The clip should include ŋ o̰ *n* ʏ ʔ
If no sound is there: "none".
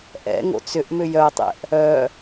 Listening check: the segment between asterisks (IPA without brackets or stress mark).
t͡s